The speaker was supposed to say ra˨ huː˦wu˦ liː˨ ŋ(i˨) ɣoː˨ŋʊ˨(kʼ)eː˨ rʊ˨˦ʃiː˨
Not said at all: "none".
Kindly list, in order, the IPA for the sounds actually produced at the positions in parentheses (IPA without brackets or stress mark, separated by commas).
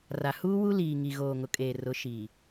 i˨, kʼ